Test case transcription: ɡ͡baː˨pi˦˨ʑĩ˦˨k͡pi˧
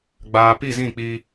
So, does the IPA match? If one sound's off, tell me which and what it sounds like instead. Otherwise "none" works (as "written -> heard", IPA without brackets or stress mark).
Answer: ʑ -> z